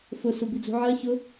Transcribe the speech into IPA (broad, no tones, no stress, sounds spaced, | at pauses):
f ʊ s u b i d͡z ṳ ʕ ɜ ç ʊ